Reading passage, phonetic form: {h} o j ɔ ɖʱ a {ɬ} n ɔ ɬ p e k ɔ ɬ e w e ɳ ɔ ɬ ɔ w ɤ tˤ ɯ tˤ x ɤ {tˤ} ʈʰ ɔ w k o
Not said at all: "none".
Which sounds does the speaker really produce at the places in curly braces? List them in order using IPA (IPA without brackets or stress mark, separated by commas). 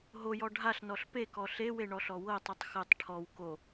ɦ, ɬ, tˤ